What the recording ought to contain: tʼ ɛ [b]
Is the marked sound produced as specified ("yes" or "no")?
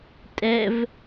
no